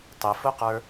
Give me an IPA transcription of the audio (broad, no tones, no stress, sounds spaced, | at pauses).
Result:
tˤ ɪ f ʊ q ə˞